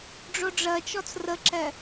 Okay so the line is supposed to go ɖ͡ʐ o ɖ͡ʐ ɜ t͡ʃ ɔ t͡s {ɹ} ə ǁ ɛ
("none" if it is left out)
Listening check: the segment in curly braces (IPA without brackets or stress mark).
r